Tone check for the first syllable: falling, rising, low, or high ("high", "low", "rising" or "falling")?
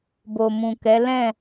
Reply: low